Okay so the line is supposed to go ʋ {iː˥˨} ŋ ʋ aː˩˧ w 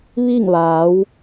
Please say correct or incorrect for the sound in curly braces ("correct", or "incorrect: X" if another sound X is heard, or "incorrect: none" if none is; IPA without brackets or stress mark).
incorrect: i˥˨